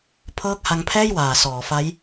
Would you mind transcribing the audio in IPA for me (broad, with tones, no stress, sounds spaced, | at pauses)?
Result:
pʰ ɤː˦˥ k̚ h a˧ ŋ pʰ ɛː˥˩ j w aː˨˩ s ɔː˩˦ f a˦˥ j